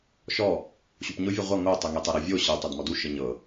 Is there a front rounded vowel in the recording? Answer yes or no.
no